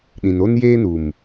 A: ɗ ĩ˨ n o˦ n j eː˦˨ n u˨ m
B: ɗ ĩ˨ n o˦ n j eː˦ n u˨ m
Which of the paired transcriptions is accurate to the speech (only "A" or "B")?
B